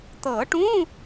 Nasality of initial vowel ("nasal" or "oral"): oral